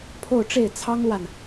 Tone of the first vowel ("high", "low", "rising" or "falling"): falling